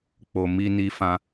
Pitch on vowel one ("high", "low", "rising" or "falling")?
low